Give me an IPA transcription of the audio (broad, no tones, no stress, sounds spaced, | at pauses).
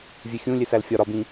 vʲ e xʲ ũ lʲ e s æ l fʲ ɒ ɾ ɒ b ĩ